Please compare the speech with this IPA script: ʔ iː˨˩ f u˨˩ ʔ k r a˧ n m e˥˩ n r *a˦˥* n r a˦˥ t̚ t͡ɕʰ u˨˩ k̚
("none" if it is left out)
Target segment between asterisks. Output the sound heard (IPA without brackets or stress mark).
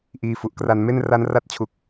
a˦˥